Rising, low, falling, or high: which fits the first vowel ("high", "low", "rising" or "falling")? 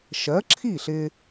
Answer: rising